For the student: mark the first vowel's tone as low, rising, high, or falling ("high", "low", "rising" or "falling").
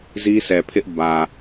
high